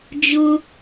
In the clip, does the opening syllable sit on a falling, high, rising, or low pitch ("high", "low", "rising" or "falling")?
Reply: high